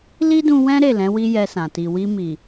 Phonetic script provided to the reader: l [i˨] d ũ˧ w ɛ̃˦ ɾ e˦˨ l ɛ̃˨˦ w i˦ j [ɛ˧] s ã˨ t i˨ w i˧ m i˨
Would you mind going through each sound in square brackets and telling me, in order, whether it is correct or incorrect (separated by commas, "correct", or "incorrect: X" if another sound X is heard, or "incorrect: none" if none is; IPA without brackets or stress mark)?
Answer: incorrect: i˦, correct